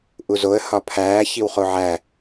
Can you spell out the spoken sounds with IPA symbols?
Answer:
ʔuzoə̯ hɒpʰæː çiwχoʕæ

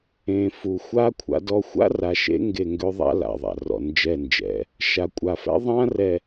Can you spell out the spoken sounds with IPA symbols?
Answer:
ẽ˨fu˨xʷa˦ kʷʰa̰˦dɔ˦ xʷa̰˦ra˨ʃḛ˦ ŋɡe˦˨ŋɡø˦ðˤa̰˦la̰˨ ðˤa̰˨rɔ̰˨nd͡ʒɛ˦˨nd͡ʒɛ̰˨˦ | ʃa˨kʷʼa˨fɛ̰˦ ðˤã˦ rɛ˨

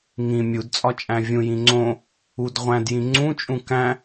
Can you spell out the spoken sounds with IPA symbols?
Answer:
ŋĩ mʲudt͡sʼɒ t͡ʃʼæ̃vʲũjĩ ŋ͡ǀõ | udʁʷæ̃djĩ ŋ͡ǀũt͡ʃʼũ kæ̃

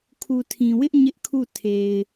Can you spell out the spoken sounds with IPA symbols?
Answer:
kʰu˨tʰĩ˨wɪ˦ʔ ɲɪ˦ʔkʰu˦˨ tʰe˨ɪ̯

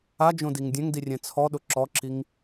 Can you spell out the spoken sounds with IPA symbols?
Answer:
ad͡ʒõ diŋdʲɛ̃ŋdi rʲɛ̃t͡sʰɔɗʊ ǁɔǁiŋ

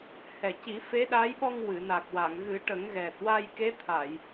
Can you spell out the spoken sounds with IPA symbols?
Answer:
hɛ˨˩ ci˨˩˦fe˧˥ɗa˧˥jɓɔ˧ŋ wɨ˨˩˨na˨˩k̚ wa˨˩˨ŋɣɨ˨˩˦ʈə˨˩˦ŋɣɛ˨˩t̚ wa˧jke˧˥t̪ʰa˨˩˨j

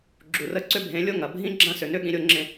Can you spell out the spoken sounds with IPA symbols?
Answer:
ɡ͡ǁu˨rə˦ ǀʏ˦bʱẽ˨˦lʲo˦ ŋɐ˨ bʱĩ˦ ɡ͡ǁɐ̃˦sʏ˨ nʏ˦ɠĩ˨ ɾʲo˦ŋ͡ǁẽ˦

